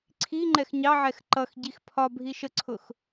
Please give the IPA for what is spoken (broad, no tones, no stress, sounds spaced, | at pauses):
ǀʰ i ŋ͡ǃ ɛ x ɲ ɑ ʕ ɛ x ǃ ʌ x ɟ i x pʰ ɒ bʱ i ʃ ə ǀʰ ʊ x